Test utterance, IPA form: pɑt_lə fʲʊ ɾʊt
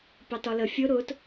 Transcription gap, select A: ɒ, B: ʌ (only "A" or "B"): A